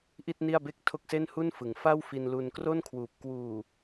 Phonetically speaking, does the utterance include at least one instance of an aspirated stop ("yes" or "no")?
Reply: yes